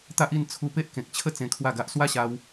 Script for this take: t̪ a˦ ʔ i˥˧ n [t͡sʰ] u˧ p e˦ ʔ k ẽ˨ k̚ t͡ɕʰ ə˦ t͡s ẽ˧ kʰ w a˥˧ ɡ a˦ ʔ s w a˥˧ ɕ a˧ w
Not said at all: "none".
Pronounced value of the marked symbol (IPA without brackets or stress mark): t͡sʰ